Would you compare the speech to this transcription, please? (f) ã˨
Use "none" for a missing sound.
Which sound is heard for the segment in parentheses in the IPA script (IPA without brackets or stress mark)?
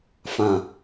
f